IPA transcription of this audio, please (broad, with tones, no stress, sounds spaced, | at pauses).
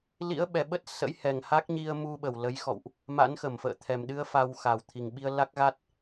l ḭ˧˥ ə̯ ɓ ɛ˨˩ ɓ ə˦˥ t̚ s ə̰˧˥ j h ɛ˨˩ ŋ h a˦˥ k̚ ɲ i˧ ə̯ m u˧ ɓ ə˧˩ w l ə˨˦ j x ɔ̰˧˨ w ʔ | m a̰˧˥ n x ə˧˩ m f ə̰ː˧˨ t̪ʰ ɛ˨˩ m ɗ ɨ˧ ə̯ f a˧ w x a˨˩ w t̪ʰ i˨˩ ŋ ɓ i˧ ə̯ l a˦˥ k̚ ɣ a˦˥ t̚